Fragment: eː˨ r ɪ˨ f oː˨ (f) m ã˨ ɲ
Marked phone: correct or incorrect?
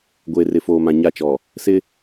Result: incorrect